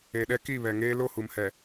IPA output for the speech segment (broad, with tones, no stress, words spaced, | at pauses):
e˨ɗɛ˦ ki˦˨βɛ˨ŋeː˦ lo˦˨hu˨mhɛ˨